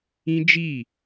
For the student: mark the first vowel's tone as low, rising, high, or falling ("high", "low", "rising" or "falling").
high